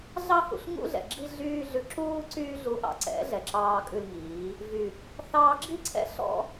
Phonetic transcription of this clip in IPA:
ɮ ɑ˦ h ṵ˧ ɬ ŋ ṵ˦ ɮ ɛ̰˨ ɡ͡ǁ i˦ ɮ yː˦ ɮ ʉ˨ ǁ uː˧ ǀ yː˧ ɮ u˨˦ ʔ ɑ̰˨ ǀ ɛ̰˨˦ ɮ ɛ˨ ǁ ɑː˧ kʼ ʉ˧ l ŋ iː˨˦ | v y˨ | θ ɑː˧ ɡ͡ǁ i˦ ǀʰ ɛ̰˦ ɬ ɔ̰˦

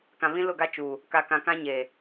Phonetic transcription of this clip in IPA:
k ã˨ β ĩ˦ l ʊ˦˨ ɡ a˦ t͡ʃ uː˨ | k a˨ k ã˨ k ã˦ ɲ eː˨

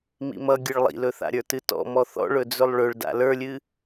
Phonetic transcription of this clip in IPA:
m ḭ m ʌ ɡʲ ɨ ɭ lˠ ḭ l ɵ θ a̰ ɾʲ ə˞ t ɨ t ɔ̰ m ɔ θ ɔ̰ ɭ ɵ d͡z ɵ lˠ ɭ ɵ ɭ d a̰ l ə˞ lʲ ɨ

